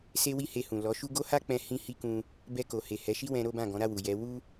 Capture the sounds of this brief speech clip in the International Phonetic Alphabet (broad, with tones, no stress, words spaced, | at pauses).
se˦wi˦he˧hũ˨ lɔ˨˦ʃu˦ ɡo˦ha˦k͡pɛ̃˧ hĩ˧ hi˦kũ˧ | bɛ˧ko˨he˨ hɛ˨˦ʃi˦wɛ̃˧ ɾo˦bã˦˨ ɡɔ̃˨˦ɾa˦˨wu˨ jɛ˨˦ wu˦